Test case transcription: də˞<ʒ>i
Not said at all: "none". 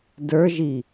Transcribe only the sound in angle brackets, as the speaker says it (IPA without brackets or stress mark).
ʒ